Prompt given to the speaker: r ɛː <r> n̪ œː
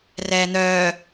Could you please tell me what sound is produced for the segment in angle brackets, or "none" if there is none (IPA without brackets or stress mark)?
none